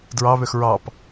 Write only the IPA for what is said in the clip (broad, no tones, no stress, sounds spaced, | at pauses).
d ɹ ɑ β ø x ɹ ɑ p